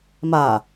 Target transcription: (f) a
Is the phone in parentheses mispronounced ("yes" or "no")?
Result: yes